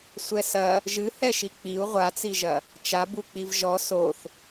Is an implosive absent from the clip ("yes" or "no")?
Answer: yes